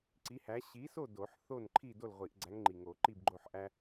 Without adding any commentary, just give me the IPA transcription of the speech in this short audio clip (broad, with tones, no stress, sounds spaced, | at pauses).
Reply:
ǀ i˨˥ h æ˨˥ ɕ i˨˥ s o˥˨ d o˨˩˦ ħ θ o˥˨ n ǃʰ i˥˨ d o˥˨ l ʁʷ i˨˩˦ ʔ ɡ͡ǀ æ˨˥ ŋ ŋ͡ǃ i˨˩ ŋ o˨˩˦ ǃ i˥˨ b ɡ͡ǃ o˥˨ ħ ʔ æ˦